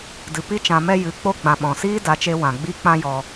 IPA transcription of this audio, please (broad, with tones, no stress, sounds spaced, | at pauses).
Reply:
d ɨ˨ p i˦ t͡ʃ ã˧ m ɛ˦ j ɨ˨˦ k͡p o˦ ɡ͡b ã˨ ɓ ɔ̃˨ s iː˦ d a˨˦ t͡ʃ e˧ w ã˨ ɡ͡b i˦ k͡p ã˦ j ɔ˧